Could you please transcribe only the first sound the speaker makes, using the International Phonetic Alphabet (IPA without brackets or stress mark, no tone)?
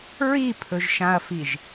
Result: ɹ